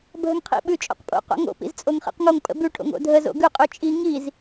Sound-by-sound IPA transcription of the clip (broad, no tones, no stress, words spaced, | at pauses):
bʱəŋqʰḭ ɓʉt͡ʃʼo̰qpʼo̰ qo̰ŋo̰ pḭzt͡sʼoŋχḭqŋoŋ pʼə̰bʉ ʈʰo̰ŋo̰dʱə zo̰ɡʉ qʼʉt͡ʃʼi ŋiz